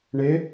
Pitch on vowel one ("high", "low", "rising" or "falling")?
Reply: rising